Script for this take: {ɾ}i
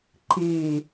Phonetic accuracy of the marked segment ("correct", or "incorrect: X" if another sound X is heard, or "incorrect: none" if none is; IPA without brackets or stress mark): incorrect: ǃ